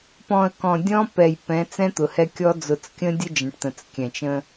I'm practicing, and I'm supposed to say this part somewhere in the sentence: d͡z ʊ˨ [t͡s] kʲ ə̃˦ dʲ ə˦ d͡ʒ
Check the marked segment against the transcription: correct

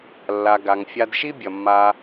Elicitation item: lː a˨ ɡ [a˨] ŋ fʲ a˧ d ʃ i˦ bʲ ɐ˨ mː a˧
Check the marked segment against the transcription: correct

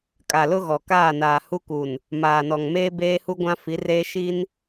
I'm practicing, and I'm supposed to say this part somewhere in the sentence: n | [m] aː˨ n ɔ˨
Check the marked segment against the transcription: correct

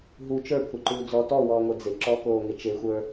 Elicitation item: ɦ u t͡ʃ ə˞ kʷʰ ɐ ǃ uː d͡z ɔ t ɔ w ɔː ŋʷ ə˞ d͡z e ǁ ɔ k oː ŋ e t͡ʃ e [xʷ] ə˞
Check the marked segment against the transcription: correct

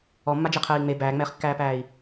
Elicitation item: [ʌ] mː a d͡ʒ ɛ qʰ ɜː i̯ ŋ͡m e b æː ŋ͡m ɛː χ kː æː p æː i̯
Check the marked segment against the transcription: incorrect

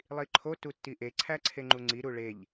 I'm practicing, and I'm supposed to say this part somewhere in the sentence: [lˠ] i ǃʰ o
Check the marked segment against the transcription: correct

